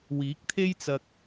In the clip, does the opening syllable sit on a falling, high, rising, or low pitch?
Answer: rising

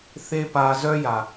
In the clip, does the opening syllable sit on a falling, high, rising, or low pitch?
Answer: high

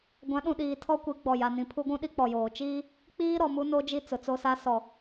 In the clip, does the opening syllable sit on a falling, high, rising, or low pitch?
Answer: rising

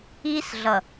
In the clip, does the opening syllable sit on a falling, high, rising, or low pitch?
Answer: high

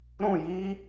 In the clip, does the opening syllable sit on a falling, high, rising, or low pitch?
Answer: falling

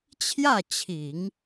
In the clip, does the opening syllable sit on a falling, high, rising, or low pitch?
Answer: falling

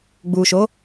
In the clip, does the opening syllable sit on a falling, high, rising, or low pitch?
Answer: low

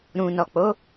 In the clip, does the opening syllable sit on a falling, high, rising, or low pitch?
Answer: low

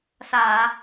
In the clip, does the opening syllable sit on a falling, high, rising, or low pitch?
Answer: low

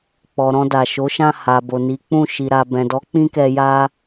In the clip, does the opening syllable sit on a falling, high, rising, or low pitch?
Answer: low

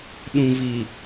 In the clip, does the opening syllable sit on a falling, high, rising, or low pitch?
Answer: low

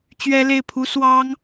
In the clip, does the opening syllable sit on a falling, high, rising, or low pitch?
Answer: high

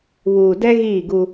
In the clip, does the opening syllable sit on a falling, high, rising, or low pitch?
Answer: low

